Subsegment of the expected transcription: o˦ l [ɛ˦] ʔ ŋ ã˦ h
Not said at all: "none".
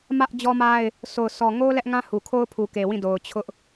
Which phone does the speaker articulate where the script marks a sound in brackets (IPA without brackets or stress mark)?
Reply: ɛ˦